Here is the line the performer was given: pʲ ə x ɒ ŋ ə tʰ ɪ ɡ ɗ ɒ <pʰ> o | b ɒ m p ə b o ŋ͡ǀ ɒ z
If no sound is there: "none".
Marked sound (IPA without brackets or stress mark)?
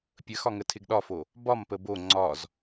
f